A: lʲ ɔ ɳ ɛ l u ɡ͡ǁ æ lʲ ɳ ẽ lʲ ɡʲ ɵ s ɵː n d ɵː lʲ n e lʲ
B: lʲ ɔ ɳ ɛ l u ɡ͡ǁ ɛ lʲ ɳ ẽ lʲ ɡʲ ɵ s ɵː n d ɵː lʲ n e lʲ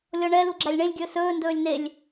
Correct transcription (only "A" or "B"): A